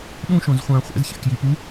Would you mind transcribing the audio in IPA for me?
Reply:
ɗ ũ ʃ õ z χʷ ãː χʷ ɛ̰ z ç a̰ k j i p u

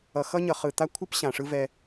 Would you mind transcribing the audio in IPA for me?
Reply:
ʌ˨ x ʌ˦ ɲ ʌ˨ χ ɯ˨ t̪ a˦ kʷʰ ɨ˦ p ɕ ã˨ ʂ ɯ˦ v ɛ˦

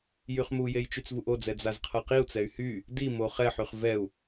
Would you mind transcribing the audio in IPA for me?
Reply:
j y χ m u j e j t͡ʃ y t͡s v u ʔ o d͡z ɛ d͡z a z qʰ ɤ q i u̯ t͡s ɛ y̯ h y | d i m o χ ɛ ħ y χ v ɛ u̯

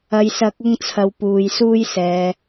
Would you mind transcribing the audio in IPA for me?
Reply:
ɐ˨ j s ɐ˨˥ k̚ ʊ˧ ŋ t͡sʰ ɐ˨ w p uː˨ j s uː˥ j s ɛː˨˧

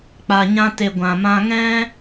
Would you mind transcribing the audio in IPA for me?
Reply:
k͡p a˨ ɲ ã˧ t e˨ ɡʷ ã˨ m ã˧ ŋ ɛ̃˦

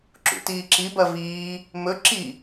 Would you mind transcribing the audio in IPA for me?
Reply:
ǁ ṵ t iː ǁ i b ɐ v iː | m ɵ ǁ i

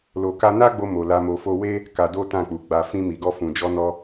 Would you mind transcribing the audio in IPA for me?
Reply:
l o˨ k a˧ n a˦ ɡ͡b o˧ m o˨ l a˨˦ m o˧ f o˦ w e˦ | k a˧ d o˦ t ã˦˨ k͡p u˨ ɡ͡b a˧ f ĩ˧ m i˨ ɡ ɔ˧ f ũ˨ d͡ʒ ɔ˧ n ɔ˧

